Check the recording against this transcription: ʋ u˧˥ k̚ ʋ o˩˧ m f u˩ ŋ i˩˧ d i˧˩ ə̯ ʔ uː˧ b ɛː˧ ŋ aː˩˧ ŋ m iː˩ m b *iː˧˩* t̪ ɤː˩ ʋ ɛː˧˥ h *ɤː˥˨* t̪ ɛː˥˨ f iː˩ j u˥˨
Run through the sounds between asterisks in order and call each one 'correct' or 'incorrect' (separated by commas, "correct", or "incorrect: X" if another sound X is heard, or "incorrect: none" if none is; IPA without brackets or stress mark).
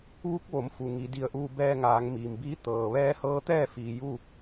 incorrect: iː˧˥, incorrect: ɤː˧˥